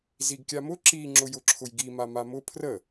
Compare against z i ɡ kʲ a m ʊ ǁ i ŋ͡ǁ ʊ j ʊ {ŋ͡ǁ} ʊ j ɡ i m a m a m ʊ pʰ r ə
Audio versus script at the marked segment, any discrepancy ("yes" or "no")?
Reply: yes